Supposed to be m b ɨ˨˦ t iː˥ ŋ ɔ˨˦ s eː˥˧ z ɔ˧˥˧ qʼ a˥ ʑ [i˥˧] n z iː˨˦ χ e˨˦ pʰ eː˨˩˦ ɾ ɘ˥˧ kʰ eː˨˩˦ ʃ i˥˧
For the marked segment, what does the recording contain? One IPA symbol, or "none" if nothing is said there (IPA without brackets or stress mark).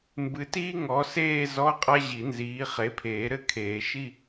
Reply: i˨˩˦